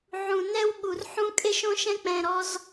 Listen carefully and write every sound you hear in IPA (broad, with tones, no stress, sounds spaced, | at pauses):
ʕ ũ˨ n ɛ˦ w ɠ u˨ r ħ ũ˦ kʼ e˦ ʃ õ˦ ʃ ɛ̃˦ k͡p ɛ̃˨ ɾ ɔ˦ z